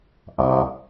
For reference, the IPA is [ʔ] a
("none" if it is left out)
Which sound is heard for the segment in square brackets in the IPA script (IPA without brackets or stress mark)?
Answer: ʔ